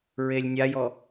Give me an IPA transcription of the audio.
ɹ e lʲ nʲ a j ɔ

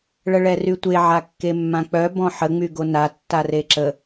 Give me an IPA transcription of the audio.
ɭ ə ɭ ɛ r y tʷ e ʕ a kː e mː ã k͡p œ b ɔ̃ ħ ə ŋ͡m y ɡ o n a tː a r e ǁ ə

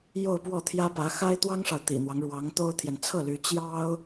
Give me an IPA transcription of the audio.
j o˥˧ ʊ̯ p w ɔ˥˩ t̪ʰ j ä˥ p ä˧˥ x a˥ ɪ̯ t̪ w ɑ˥ ŋ ʂ ɑ˨ ʊ̯ t̪ ḭ˨˩ n̪ w ɑ˦ ŋ ɻ w ɑ˧˥ ŋ t̪ o˥ ʊ̯ t̪ʰ j ɛ˨ n t͡sʰ ɤ˥˩ l y˧˥ t͡ɕ j ɑ˥ ʊ̯

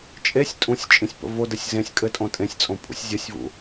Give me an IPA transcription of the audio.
t͡ʃʼ e sʲ tʼ ũ sʲ t͡ʃʼ ĩ sʲ p ə̰ v o d ɘ sʲ z ẽ sʲ kʼ ɘ tʼ õ tʼ ẽ sʲ t͡sʼ õ pʼ ṵ sʲ zʲ ə sʲ v ṵ

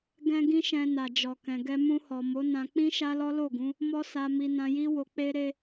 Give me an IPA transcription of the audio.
ɡ ɛ̃˦ ɡ ĩ˦ ʃ ɛ̃˧ n a˨ d͡ʒ ɔ˨ k ɛ̃˨ ɡ ɛ˧ m ũ˧ h ɔ˨ m o˨˦ n ã˧ k͡p ĩ˦ ʃ a˦ l ɔ˦ l o˦˨ ɡ ũ˨˦ | m ɔ˦ s a˧ m i˧ n ã˧ j i˦ w o˧ k͡p e˦ ɾ e˦

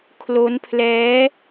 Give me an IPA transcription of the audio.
kʰ l o˦˥ n pʰ l ɛː˦˥

